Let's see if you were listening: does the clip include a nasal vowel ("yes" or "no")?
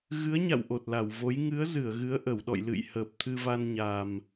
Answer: no